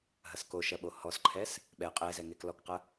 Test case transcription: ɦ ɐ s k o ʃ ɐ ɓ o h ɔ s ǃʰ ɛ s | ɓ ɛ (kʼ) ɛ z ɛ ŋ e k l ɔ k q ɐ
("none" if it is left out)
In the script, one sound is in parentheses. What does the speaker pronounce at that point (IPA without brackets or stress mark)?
qʼ